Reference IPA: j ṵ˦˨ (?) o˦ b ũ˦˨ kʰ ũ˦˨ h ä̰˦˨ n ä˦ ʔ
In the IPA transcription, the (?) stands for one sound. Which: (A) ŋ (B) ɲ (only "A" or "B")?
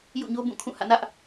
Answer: B